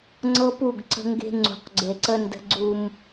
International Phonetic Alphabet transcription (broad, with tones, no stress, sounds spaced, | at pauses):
ŋ͡ǀ ɤ˦ p u˦˨ ɡ ǀ ə̤˦ ŋ ɡ e̤˦ ŋ͡ǀ ṳ˨ q ɡ͡ǀ e˨ ǀ ə˦ n d ə̤˦ ɡ͡ǀ u˦ m